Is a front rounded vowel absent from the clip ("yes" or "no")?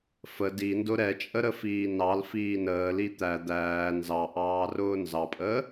yes